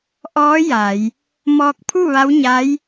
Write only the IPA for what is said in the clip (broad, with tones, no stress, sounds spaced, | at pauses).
ʔ ɔː˧˥ j a˩˧ j | m ɔː˧ k̚ pʰ u˥˨ ʋ a˧˥ w ɲ a˧˥ j